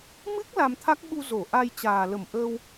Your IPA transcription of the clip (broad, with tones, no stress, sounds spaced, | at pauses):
m ɨ˦˥ k̚ l a˧ m t̪ʰ a˦˥ k̚ ɓ u˧ z o˧˩ ʔ a˧ j t͡ɕ aː˨˩ l ə˧˩ m ʔ əː˧ w